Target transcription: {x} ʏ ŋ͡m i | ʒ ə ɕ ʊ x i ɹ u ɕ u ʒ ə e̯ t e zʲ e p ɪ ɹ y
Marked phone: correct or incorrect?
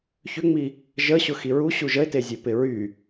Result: incorrect